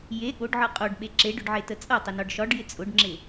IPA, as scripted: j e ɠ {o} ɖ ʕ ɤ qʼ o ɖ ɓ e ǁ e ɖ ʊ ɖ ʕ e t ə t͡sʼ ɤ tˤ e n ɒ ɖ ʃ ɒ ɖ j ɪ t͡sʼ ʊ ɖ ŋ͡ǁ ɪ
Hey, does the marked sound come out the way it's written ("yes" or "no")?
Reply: yes